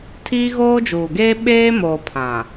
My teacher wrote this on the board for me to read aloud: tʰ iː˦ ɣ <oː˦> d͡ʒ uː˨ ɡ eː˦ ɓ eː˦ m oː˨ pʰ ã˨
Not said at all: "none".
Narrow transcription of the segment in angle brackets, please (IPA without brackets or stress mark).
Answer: oː˦